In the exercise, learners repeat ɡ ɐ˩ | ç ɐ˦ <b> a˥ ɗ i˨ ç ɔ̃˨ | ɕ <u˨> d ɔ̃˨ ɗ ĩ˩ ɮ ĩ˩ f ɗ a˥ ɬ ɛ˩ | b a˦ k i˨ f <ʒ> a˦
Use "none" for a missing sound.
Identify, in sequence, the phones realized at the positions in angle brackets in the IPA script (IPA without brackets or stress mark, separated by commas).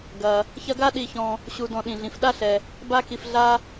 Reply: ɡ, u˨, ɮ